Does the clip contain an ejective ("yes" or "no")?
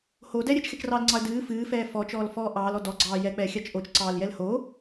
no